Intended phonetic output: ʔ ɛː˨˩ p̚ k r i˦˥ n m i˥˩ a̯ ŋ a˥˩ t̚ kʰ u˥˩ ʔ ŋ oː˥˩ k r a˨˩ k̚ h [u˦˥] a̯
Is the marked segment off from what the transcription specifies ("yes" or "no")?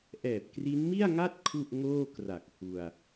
yes